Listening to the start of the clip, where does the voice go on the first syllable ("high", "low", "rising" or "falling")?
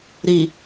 low